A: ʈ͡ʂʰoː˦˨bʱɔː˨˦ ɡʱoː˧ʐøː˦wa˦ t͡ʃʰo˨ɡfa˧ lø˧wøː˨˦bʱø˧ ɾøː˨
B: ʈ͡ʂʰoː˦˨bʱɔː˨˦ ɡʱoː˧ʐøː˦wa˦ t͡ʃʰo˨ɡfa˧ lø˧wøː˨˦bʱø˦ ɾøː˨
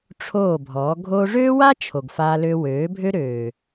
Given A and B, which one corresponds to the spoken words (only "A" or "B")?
B